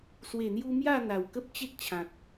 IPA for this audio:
s w e˨˩ n̪ j u˧ m j a˥˧ n̪ a˨˩ w k ə˦ p̚ t͡ɕ e˦ k̚ t͡ɕʰ ã˨ t̚

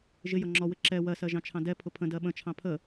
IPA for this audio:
ʒ ɪ j ʌ ŋ͡ǁ ɔ w ɪ ǁ ɛ w ɜ s ɜ ʒ ɑ̃ t͡ʃʰ ɑ̃ d ɛ pʰ ʊ pʰ ə̃ d ɜ ɓ ə̃ t͡ʃʰ ɑ̃ pʰ ə

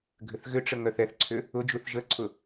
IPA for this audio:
ɡʱ ʏ θ ɣ ʏ ʈ͡ʂ ə ŋ œ θ ɛ θ ǀʰ ʏ | ʊ d͡ʒ u θ ʒ ə ǀʰ ʊ

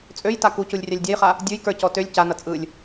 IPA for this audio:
t͡sʼ ø j t a k u c u lʲ rʲ a lʲ dʲ a j χ a | dʲ ə˞ j k ə˞ c ɔ t ø lʲ c a n ʌ t͡sʼ ɯ lʲ

